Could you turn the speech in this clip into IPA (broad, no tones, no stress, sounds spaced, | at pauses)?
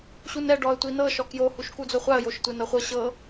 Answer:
ɕ u n ɛ ɖ ɔ ə̯ tʷ i n ɤ ʃ ɔ k j o h u ʃ k u d͡z o χʷ a ə̯ j o ʃ tʷ e n ɤ χʷ ɤ ɕ ɤ